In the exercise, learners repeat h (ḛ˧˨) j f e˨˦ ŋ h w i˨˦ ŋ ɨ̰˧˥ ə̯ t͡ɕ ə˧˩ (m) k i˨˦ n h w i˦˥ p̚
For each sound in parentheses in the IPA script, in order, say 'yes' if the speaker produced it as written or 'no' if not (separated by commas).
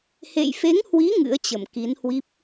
yes, yes